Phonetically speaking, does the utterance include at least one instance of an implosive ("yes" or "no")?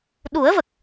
yes